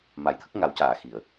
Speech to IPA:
m a˨˩˨ j t̪ʰ ə˦˥ k̚ ŋ a˨˩˦ w c aː˨˩˨ x i˨˩˨ ə̯

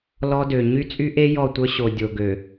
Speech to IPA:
l ɔ˦ d ø˨ ɲ y˦ t͡sʼ y˦ ʔ e˦ j ɔ˦˨ tʷ œ˦ ɕ o˨ dʲ o˨ ɡ ø˨

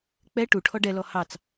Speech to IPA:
k͡p ɛ ʈ u ʈʰ ɔ ɖ ɛ l ɔ h ɑ t͡s

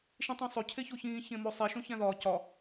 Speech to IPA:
ʃ ĩ tˤ ũ sˤ o cʰ e ç o ç ĩː ç ẽ m o sˤ i ʃ õ ç æ̃ ð ɒː c ɒ

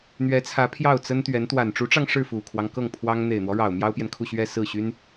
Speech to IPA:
n̪ ɥ ɛ˧˥ t͡sʰ ä˧˥ pʰ j ɑ˥˩ ʊ̯ t͡s ə˥ n t̪ ɥ ɛ˧˥ n t̪ w a˨˩ n ʈ͡ʂ u˧˥ ʈ͡ʂ ɑ˧ ŋ ʂ ɻ̩˥˩ f u˨˩ kʰ w ɑ˦ ŋ k ɤ˥˩ ŋ pʰ w ɑ˥ ŋ n̪ e˨˩ ɪ̯ n̪ w ɔ˦ ɻ ɑ˨˩ ʊ̯ m j ɑ˥ ʊ̯ p j ɛ˨ n kʰ u˥˧ ɕ ɥ ɛ˥˧ s ɹ̩˥˩ ɕ y˥ n

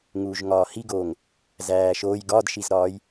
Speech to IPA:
ŋ uː ʒ ŋ ɒː h i ɡ oː ŋ | z æː ʃ oː j ɡ ɒ d ʃ i z ɾ ɒː j

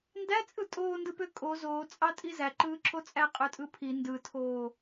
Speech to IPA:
n d æ t͡sʼ ɯ tʼ oː n d ɯ p ø kʼ o z oː t͡sʼ ɑ tʼ i z æ ǃ ɯː ǁʰ o t͡sʼ æ qʼ ø tʼ ɯ pʰ i n d ɯ tʰ oː

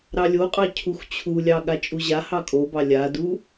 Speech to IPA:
ɾ ɑ lʲ o qʼ ɑ cʰ u x t͡ɕʰ u lʲ ɑ ɠ a t͡ʃʼ u ʑ a h ɑ kʼ o b ɑ lʲ a d u

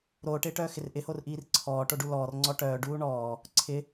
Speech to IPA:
ɾ oː ʈ ɪː ʈ œː x ɪ r ʔ ɪ h o r ʔ iː r ǀʰ ɔː ʈ o ɖ u l ɔː r ŋ͡ǀ ɔ ʈ œː ɖ uː ɳ ɔː | ǀʰ ɪ

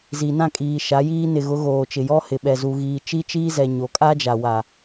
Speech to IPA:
z i˨ n ã˦˨ kʼ iː˨ ʃ a˨˦ j iː˦ n ɪ˨ ɣ ʊ˨˦ ɣ oː˨ t͡ʃ ɪ˨ j ɔ˦ h ɪ˨ ɓ ɛ˨ z u˨ ɣ iː˨ t͡ʃ i˦ t͡ʃ iː˦ z ɛ˨ ɲ o˨ kʼ a˦ d͡ʒ a˨ w a˨

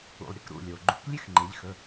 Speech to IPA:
ṵ˩ lˠ ɾʲ ɨ˩˧˩ k ɾ ṵ˩˧˩ lʲ o˩ ɡ͡ǃ ṵ˩˥ k lʲ ʉ˦ x ŋ͡ǃ e˩˧ ʎ x ɵ˩˧˩

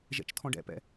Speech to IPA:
ʒ ɛ̰ t͡ʃ t̪ʰ ɔ̃ ɖ ɛ̰ p ɛ̰

